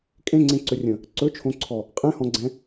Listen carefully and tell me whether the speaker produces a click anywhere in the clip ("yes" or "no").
yes